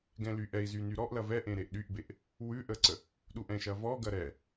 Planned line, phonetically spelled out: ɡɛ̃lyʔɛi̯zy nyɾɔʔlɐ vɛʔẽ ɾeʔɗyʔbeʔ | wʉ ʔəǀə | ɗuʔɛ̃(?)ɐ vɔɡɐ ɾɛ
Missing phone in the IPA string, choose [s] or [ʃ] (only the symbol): ʃ